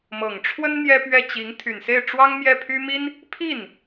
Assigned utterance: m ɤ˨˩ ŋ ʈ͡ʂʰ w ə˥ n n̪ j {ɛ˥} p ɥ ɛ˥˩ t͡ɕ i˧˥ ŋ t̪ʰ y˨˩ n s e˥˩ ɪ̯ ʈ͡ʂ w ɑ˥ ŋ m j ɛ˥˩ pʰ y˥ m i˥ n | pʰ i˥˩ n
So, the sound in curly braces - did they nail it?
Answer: yes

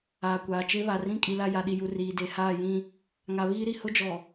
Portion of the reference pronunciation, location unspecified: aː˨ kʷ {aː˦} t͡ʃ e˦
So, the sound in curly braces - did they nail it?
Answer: no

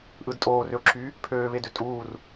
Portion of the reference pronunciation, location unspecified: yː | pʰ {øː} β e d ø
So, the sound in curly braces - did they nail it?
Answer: yes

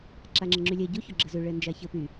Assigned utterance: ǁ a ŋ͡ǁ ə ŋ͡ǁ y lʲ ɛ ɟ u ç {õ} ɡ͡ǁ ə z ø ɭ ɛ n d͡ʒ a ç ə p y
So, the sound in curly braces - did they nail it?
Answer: no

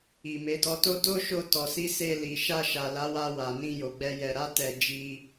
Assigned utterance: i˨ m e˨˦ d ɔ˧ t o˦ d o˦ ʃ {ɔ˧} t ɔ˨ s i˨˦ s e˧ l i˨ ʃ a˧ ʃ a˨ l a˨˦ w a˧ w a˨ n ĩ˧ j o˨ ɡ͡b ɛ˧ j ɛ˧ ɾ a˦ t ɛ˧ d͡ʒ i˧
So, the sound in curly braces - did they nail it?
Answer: no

